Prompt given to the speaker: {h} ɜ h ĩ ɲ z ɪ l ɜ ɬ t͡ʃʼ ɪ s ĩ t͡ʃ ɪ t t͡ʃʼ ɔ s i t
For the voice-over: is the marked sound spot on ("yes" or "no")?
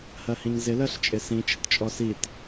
yes